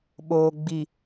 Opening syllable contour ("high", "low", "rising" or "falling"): low